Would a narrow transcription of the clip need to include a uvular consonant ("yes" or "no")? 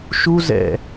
no